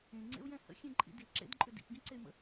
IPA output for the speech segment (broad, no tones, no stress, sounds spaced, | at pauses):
ẽ ŋ͡ǀ ḛ u̯ j ɛ̃ h ə̰ xʲ ẽ ǃʼ ḭ d i ǁ ḛ d ǃʼ ʏ d ḭ p ɡ ĩ ǀ e y̯ m ə̰